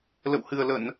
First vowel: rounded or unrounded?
unrounded